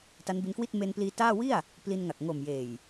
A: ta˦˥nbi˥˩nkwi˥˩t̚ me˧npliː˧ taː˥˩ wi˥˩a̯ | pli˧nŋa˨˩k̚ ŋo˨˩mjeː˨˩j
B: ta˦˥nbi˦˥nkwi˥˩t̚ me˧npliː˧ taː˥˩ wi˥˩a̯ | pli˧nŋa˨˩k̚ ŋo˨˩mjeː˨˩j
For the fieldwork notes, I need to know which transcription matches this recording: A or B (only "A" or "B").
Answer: B